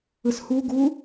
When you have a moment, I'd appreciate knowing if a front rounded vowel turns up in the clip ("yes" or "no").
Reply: no